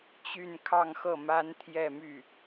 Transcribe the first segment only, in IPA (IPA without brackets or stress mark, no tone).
t͡ɕ